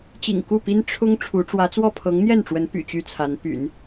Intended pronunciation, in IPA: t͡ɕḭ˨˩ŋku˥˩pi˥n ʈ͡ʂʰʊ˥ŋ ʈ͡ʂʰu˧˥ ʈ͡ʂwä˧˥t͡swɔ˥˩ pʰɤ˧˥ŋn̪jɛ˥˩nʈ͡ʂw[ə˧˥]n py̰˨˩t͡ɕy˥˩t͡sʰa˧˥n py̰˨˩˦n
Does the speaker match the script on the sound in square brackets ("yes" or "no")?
yes